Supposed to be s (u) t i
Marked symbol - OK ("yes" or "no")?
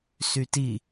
no